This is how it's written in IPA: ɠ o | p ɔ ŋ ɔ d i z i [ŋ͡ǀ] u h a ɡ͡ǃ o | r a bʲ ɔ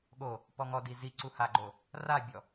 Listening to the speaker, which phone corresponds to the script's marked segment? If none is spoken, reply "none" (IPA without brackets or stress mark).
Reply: ǀ